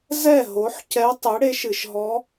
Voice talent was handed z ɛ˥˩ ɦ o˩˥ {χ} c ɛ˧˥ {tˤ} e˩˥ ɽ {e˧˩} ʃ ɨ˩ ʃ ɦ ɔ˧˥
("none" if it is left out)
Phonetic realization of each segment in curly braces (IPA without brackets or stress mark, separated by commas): ħ, tˤ, e˩˥